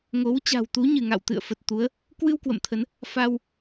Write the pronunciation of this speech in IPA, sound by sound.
ŋ o˨˦ w t͡ɕ a̤˨˩ w t̪ u˨˦ ɲ ɨ˧˩ ŋ a̰˧˨ w t̪ ɨ̰˧˨ ə̯ f ə˨˩ t̚ t̪ u˨˦ ə̯ | k w ɨ˧ w k w ə̰˧˨ m t̪ʰ ə˨˦ n | f a˧ w

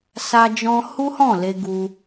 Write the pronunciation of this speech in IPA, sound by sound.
s a˦ d͡ʒ ɔ̃˦ h u˦ h ɔ̃˦˨ l e˧ ɡ u˧

